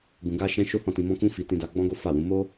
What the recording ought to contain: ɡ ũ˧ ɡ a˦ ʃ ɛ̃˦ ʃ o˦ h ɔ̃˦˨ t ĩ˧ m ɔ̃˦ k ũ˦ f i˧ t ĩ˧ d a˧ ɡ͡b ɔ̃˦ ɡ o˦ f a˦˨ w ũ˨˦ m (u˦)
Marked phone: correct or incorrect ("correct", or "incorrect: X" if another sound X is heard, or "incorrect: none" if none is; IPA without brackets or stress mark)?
incorrect: o˦